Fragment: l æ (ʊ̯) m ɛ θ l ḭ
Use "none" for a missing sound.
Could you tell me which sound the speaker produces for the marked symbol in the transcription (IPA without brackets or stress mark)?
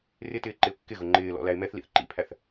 ɪ̯